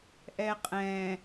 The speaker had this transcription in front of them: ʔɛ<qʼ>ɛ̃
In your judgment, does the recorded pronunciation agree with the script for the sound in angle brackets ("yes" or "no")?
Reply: yes